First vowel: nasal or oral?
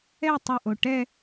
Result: oral